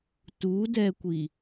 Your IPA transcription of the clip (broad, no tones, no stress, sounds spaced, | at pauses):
t u d ɛ kʷ i